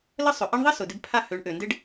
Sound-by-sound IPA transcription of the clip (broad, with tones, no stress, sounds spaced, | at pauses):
l ə˥ sˤ ʏ˩ ʔ e˥ ɳ ðˤ ɪ˥ s ʊ˩ d ɪ˧ b pʰ a˥˩ h ø˩˥ ɳ ʔ ø˩ n d ɪ˥ ɖ